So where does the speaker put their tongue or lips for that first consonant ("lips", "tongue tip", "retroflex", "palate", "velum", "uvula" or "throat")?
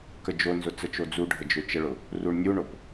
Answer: velum